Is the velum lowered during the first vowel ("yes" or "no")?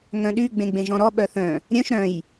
yes